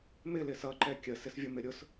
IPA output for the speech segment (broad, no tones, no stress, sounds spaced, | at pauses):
m ɪ l ɪ s ʌ ǃ ɛ kʲ ə s ɪ s vʲ ʊ m ɪ ɾʲ ʊ s